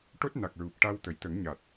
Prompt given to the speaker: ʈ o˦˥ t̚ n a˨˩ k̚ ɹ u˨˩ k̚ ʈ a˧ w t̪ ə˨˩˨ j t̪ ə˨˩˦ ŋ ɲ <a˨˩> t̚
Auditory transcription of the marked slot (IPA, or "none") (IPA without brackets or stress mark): a˨˩